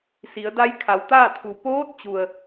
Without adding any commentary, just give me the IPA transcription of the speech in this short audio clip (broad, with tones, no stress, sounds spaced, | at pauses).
s i˩˧ ə̯ d a˧˥ j kʰ a˩˧ w t̪ aː˥˨ t̪ʰ u˩ p oː˧˥ t̚ t͡ɕ u˩ ə̯